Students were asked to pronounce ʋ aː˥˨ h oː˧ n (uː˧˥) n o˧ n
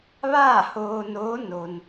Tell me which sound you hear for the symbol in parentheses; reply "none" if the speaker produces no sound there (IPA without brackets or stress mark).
oː˧˥